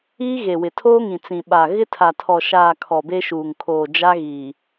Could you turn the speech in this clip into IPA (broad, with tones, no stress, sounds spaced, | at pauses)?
iː˦ ɣ e˨ w ɪ˨ tʰ oː˦ ŋ ĩ˨ t͡s ĩ˨ ɓ a˨ ɣ ɪ˦ tʰ a˨ tʰ ɔ˨ ʃ aː˨ kʰ ɔ˨ b e˦ ʃ uː˨ ŋ kʰ oː˨ d͡ʒ a˦ ɣ iː˨